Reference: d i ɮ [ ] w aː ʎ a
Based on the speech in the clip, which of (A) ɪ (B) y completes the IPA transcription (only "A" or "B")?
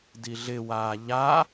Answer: A